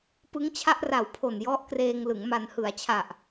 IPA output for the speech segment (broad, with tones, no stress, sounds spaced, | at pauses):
p ɯ˦˥ ŋ t͡ɕʰ a˥˩ ʔ r a˨˩ w pʰ o˨˩ n j ɔ˦˥ ʔ k r eː˧ ŋ l ɯ˩˦ ŋ m a˩˦ n h ɯ˩˦ a̯ t͡ɕʰ a˨˩ ʔ